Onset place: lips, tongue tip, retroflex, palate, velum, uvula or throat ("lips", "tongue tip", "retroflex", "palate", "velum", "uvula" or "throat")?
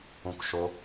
velum